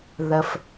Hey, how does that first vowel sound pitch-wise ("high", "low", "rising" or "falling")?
low